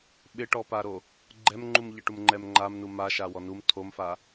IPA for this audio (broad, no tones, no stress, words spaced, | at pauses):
ɓɪʈɔpaɾo | ɡ͡ǃɛmŋ͡ǃumʎɪʈum ŋ͡ǃɛmŋ͡ǃamnu maʃa wɔnum tʰomfa